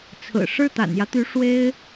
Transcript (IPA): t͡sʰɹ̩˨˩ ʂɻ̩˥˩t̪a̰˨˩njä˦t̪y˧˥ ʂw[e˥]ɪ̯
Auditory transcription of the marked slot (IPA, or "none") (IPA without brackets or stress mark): e˥